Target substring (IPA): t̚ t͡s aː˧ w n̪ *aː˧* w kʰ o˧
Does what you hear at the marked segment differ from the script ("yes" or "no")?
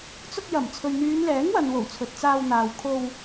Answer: yes